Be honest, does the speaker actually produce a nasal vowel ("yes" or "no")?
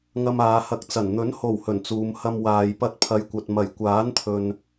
no